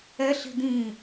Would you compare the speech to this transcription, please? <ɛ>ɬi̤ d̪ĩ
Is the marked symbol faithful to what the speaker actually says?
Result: yes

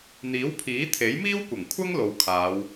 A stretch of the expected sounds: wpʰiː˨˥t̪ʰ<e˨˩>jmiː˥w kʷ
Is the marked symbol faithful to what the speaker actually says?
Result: no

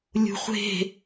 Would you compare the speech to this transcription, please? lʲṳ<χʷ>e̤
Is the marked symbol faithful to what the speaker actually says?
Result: yes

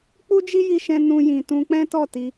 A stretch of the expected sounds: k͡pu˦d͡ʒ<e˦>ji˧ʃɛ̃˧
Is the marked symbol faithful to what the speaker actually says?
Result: no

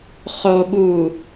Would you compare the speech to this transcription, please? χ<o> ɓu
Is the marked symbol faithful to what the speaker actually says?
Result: yes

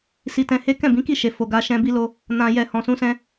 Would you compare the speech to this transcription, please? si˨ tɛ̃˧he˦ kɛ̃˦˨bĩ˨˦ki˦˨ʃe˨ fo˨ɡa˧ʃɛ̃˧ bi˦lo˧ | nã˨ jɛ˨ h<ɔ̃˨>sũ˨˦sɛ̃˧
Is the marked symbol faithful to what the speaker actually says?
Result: yes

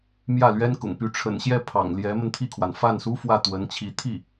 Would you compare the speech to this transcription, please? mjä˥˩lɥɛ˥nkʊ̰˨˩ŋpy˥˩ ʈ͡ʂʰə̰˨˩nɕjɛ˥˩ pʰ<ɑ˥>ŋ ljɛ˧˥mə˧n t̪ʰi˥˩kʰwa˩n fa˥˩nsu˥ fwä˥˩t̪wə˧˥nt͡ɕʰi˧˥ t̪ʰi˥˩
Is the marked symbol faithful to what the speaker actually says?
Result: no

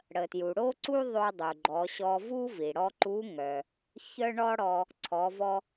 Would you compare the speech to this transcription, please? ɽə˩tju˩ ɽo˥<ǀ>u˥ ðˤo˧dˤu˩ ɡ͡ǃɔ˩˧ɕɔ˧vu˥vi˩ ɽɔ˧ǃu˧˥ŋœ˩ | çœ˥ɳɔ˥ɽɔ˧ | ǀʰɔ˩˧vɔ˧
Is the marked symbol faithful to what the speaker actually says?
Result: yes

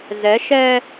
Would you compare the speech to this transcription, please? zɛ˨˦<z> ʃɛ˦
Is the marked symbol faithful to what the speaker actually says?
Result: no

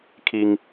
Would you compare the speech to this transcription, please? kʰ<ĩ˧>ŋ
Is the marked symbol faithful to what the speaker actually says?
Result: no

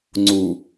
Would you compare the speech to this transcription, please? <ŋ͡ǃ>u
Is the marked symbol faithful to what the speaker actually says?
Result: no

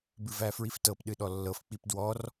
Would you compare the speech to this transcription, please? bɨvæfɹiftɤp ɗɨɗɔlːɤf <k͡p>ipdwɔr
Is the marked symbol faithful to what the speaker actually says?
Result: yes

